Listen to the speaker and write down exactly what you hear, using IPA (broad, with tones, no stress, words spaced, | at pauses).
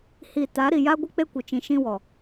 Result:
hi˨ ta˨˦ɾi˨ ja˦ɡʷɪ˦ k͡pe˦kʷɪ˨t͡ʃĩ˨ ʃĩ˦wɔ˨